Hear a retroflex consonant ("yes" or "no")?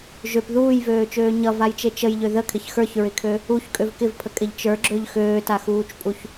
no